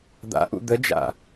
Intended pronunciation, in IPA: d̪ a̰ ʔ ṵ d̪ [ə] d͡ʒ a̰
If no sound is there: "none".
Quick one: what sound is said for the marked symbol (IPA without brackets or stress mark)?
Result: ə